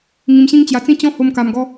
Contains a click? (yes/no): no